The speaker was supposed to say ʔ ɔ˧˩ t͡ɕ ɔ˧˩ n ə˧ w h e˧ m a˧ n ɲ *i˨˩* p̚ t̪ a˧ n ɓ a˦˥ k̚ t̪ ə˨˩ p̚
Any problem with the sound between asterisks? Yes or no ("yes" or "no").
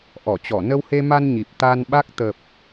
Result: no